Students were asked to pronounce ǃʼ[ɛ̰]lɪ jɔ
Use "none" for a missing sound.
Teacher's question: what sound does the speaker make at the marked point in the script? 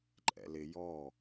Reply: ɛ̰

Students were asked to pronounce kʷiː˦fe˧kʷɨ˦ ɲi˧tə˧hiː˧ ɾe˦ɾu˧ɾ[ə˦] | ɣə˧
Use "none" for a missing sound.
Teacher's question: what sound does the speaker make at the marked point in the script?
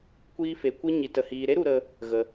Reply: ə˧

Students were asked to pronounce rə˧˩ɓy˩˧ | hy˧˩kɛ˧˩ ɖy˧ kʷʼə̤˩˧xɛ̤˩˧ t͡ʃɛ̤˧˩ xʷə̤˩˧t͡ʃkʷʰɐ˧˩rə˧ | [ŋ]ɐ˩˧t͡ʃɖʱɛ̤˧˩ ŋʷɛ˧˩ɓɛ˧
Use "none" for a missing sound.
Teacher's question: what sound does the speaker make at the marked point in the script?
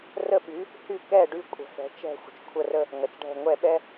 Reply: ŋ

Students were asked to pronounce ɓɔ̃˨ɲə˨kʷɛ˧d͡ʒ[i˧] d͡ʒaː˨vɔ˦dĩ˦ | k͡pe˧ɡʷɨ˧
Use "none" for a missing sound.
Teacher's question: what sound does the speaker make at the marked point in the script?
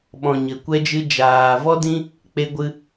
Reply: ɨ˧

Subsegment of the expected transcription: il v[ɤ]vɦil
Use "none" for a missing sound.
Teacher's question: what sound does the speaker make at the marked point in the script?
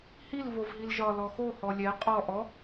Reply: o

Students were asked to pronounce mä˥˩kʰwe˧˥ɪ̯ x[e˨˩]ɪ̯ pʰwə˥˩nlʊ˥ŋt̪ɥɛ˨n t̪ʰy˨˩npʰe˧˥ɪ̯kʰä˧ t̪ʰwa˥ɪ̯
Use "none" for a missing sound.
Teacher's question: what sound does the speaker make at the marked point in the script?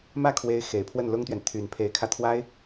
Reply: e˨˩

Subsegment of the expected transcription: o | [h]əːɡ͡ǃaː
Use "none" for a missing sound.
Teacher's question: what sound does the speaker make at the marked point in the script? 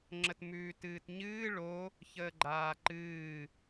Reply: ç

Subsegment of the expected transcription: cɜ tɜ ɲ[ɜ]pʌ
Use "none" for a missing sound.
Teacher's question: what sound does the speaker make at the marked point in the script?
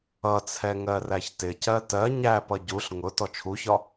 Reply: æ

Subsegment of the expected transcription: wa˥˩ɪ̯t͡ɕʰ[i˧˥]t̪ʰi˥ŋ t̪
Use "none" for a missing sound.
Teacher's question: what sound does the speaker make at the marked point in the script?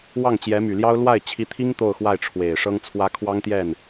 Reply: i˧˥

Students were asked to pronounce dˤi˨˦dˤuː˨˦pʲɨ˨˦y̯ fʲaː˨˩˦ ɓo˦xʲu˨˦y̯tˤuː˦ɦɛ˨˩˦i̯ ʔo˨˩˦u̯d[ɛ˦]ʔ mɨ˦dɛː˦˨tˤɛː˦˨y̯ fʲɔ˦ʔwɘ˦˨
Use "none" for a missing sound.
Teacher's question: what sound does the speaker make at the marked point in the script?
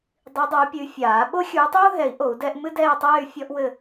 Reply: ɛ˦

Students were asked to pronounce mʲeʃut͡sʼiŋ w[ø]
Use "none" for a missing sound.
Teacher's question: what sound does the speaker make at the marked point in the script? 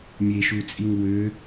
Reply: ø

